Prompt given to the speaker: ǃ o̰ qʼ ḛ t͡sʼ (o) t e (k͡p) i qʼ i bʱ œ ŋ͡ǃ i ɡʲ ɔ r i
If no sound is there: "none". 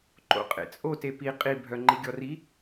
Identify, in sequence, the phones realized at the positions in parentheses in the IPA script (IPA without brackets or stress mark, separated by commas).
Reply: o, p